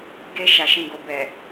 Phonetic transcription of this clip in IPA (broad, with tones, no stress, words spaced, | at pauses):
ɡe˧ ʃa˨ʃĩ˨ɡo˨ bɛ˨